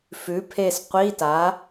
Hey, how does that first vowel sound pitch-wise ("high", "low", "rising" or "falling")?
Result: rising